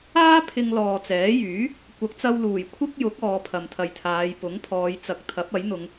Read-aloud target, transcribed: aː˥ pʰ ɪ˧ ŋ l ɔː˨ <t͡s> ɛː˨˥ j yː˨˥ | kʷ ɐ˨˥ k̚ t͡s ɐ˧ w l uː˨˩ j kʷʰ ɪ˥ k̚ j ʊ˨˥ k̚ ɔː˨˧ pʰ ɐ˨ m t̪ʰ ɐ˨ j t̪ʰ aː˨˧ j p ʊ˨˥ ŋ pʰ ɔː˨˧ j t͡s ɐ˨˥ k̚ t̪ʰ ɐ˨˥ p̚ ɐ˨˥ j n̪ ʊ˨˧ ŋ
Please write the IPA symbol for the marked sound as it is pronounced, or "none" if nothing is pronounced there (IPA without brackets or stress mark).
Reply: t͡s